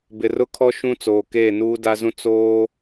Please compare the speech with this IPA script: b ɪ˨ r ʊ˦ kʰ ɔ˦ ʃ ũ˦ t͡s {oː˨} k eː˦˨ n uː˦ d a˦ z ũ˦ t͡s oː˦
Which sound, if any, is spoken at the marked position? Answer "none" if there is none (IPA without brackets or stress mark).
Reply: oː˨